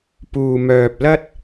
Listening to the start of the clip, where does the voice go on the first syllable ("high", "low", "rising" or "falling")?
low